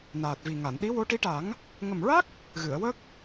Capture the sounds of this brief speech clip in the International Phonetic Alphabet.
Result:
naː˨˩t̚vi˨˩ŋa˨˩˨n ɗi˧˥wo˧˥ʈi˧˥ʈa˨˩˦ŋ | ŋə˨˩mɹa˦˥k̚ | ɣɨ˨˩˨ə̯wə˦˥k̚

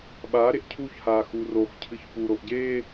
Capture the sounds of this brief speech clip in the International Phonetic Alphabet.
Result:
ɓaːɾeʔ cʰuçhaː xuroxcʰɨç puɾoʔ ɟeː

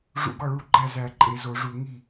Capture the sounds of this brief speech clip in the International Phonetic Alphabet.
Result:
ʐṵ˧˩˧ɡɒ˥˩ɭu˥˩ ɡ͡ǃæ˥˩zæ˧˩˧ǃʼe˧˩˧ zo˧˩˧ʐu˧˩˧ ŋi˥˩

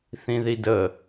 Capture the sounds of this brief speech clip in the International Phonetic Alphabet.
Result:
θĩðidə

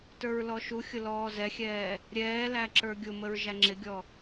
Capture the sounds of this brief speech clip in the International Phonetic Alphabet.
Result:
tə˞ɹlɔʃuxʲʊ lɔːzɛxʲɛː | ɾʲɛːlæ ǁə˞ɡʲʊməɹ ʒæŋ͡ǁɪɡʲɔ

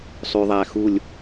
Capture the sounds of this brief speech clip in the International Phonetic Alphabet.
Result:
sˤy˩ðˤæ˩ xu˧˩lʲ

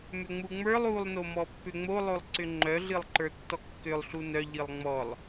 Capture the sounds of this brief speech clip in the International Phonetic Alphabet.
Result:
mʏŋ͡muŋ͡mə˞lˠ ulˠ nomɔpːʏŋ͡mo lˠolˠǀʏŋ͡ǃœ ɮɨlˠǃə˞tːɔkːʏlˠ ɬunœ ʎɨlˠŋ͡mɔlˠ

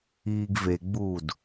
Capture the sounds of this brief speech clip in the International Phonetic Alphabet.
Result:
iːɡveɡ͡buːd

